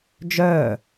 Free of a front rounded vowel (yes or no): no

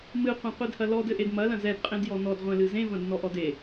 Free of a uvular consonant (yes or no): no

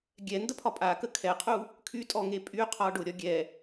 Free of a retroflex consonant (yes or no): no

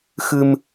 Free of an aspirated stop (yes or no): yes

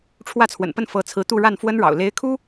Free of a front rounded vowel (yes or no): yes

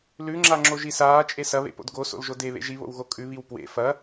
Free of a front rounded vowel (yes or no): yes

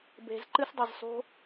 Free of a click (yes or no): no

